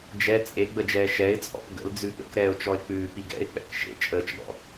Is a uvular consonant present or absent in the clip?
absent